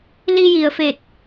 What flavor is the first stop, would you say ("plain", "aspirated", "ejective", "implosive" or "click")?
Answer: plain